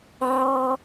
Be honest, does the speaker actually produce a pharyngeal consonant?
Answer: yes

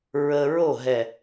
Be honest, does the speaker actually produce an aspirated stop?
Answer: no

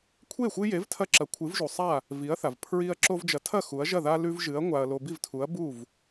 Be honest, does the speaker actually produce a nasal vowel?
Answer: no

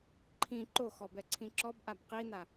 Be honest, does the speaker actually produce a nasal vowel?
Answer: yes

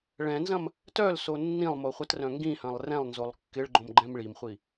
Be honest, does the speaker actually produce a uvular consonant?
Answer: yes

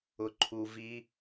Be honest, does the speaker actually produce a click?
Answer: yes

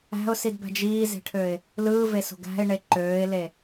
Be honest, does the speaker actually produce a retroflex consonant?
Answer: yes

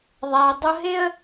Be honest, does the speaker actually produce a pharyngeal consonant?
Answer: no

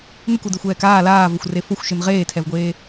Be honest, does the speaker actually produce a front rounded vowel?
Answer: no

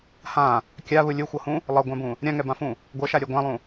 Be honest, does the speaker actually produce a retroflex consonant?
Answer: no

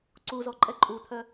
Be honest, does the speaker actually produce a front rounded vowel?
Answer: yes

